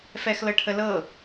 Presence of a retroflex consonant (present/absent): present